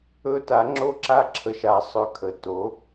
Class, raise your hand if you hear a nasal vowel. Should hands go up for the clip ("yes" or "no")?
no